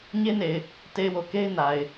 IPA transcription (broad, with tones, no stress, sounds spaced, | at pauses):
ɲ e˦ n e˨ ɪ̯ | t e˨ ɪ̯ w o˨ k e˦ ɪ̯ n a˨ ɪ̯